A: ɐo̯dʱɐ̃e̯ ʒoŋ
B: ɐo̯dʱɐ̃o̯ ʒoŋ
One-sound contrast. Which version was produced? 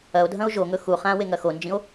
B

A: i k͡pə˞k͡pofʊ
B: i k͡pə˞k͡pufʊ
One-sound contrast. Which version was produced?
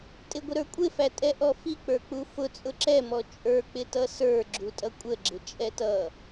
B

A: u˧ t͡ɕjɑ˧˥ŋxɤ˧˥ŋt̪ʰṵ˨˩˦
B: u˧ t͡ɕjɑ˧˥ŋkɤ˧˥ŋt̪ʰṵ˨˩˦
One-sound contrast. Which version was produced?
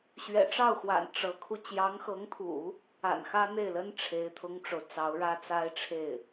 A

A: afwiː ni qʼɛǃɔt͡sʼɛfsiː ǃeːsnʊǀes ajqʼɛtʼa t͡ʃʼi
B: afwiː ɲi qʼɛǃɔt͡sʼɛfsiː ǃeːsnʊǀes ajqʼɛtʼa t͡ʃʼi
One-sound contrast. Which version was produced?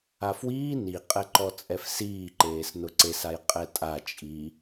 A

